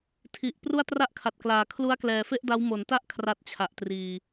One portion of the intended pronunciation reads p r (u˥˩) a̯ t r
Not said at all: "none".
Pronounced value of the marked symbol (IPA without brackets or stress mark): u˥˩